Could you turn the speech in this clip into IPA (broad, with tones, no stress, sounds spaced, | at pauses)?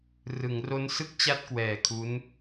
r ɯ˩˦ ŋ r o˦˥ n s ɯ˥˩ k̚ t͡ɕ a˥˩ t̚ k w ɛː˨˩ kʰ u˦˥ n